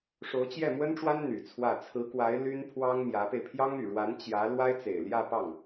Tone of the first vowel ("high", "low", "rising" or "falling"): rising